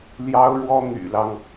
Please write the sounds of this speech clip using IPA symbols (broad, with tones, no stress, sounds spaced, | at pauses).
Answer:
l j ɑ˥ ʊ̯ ɻ w ɔ˥ n̪ y̰˨˩ l ɑ˦ ŋ